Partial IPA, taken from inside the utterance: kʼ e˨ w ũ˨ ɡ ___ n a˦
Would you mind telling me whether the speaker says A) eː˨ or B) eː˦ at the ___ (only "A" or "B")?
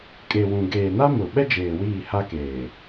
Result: A